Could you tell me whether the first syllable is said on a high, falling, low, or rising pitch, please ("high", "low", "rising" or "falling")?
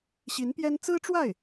rising